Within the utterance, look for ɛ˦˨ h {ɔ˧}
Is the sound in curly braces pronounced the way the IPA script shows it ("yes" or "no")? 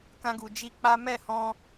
no